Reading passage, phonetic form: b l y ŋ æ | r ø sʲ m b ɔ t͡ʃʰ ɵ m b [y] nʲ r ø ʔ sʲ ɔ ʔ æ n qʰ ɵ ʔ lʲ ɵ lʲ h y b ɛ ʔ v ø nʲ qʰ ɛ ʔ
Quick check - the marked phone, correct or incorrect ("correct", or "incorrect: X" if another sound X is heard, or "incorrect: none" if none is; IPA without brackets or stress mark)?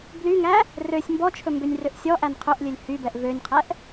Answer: incorrect: ø